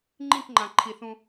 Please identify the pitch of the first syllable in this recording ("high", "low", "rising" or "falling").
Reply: falling